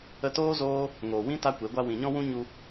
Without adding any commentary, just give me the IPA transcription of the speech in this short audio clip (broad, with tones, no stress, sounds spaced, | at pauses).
ə˧ t oː˦ z oː˦ | ŋ oː˨ w ĩ˦ t a˦ kʷ e˨˦ ɡʷ a˦ w ĩ˨ ɲ ɔ̃˦ w ũ˦ ɲ u˧